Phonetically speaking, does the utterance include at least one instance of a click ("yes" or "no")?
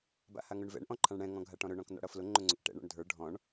yes